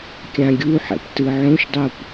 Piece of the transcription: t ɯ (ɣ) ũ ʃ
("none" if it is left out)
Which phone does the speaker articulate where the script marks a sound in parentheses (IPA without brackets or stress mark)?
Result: ʕ